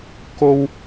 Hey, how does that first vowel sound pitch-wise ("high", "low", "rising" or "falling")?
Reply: high